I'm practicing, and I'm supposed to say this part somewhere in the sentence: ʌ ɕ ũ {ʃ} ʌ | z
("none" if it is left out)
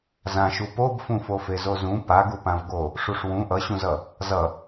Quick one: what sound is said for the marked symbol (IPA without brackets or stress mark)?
z